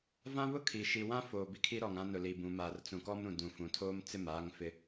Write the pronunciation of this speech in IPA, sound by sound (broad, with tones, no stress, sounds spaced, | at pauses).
v ã˦ β ʊ˦ kʰ i˨ ʃ i˨ w ã˦ f oː˨ b i˦ kʰ i˦ ɾ ɔ˨ ŋ ã˦ n ʊ˨ l i˨ b ũ˨ m aː˨ r t͡s ũ˨ k ɔ˦ m ɾ ũ˨ d ũ˨ f ũ˨ tʰ oː˦ m t͡s ɪ˦˨ m aː˦ ŋ f ɪ˦